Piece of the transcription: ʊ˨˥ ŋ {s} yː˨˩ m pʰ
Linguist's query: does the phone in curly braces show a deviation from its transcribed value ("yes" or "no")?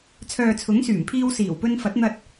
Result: no